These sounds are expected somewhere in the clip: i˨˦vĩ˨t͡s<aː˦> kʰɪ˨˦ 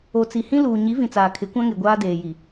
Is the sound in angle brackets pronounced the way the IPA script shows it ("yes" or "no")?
no